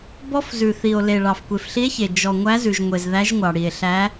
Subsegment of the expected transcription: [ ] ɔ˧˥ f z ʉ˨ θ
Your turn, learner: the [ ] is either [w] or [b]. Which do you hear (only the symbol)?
b